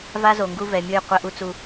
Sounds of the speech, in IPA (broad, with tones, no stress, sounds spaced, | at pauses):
v a˦ z o˨ ŋ ɡ u˦ v ɛ˨ mʲ ɯ˦˨ j qʷ ɘ˦˨ ʔ u˦ t͡s u˨